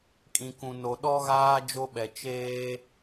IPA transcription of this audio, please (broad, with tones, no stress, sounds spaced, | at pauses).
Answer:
kʼ ĩ˨ k ũ˨ n o˨ ɗ ɔ˦ ɣ aː˦ d͡ʒ o˦ ɓ ɛ˨ t͡ʃ eː˦